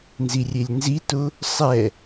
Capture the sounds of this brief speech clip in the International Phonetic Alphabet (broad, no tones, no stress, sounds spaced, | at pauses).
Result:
n z i rʲ e lʲ n z i t ʊ | sˤ ɛ